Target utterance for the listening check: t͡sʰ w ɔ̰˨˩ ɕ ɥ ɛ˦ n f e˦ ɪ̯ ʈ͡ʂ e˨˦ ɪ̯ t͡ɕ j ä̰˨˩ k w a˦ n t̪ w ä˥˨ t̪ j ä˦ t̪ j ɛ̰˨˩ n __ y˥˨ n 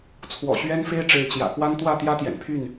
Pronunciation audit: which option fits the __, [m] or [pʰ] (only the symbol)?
pʰ